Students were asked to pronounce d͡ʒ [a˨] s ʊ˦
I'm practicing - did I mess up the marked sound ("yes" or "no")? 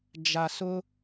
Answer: no